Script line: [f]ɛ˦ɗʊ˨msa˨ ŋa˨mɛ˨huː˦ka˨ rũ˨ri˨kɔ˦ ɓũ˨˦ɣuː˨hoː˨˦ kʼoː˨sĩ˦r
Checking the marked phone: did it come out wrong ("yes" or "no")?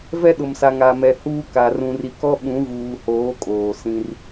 yes